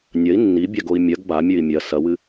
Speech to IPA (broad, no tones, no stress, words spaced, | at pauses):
nʲɐi̯ nːibʲaɡoi̯ mʲɐɡ bamʲʉi̯ mʲɐ sɐwɨ